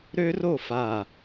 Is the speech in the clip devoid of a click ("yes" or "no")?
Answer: yes